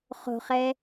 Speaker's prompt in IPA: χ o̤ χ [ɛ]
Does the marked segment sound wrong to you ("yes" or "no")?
no